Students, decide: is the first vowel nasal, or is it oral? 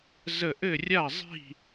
oral